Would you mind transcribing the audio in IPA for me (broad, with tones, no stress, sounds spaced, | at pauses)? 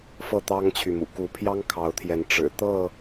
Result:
f ɤ˥˨ t̪ ɑ˦ ŋ t͡ɕʰ y˨ m ṵ˨˩ k u˨˦ pʰ j ɑ˦ ŋ kʰ ɑ˨˦ ʊ̯ t̪ʰ j ɛ˨˦ n ʈ͡ʂ ɻ̩˨˩ t̪ ɤ˥˨